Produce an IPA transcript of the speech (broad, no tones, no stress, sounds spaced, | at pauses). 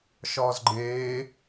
ʃ ɒː z ɡ͡ǃ eː